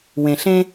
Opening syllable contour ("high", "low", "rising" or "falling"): low